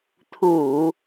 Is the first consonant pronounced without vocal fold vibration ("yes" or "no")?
yes